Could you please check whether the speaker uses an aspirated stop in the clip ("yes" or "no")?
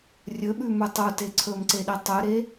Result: yes